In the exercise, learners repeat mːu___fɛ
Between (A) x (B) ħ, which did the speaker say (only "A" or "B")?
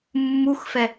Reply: A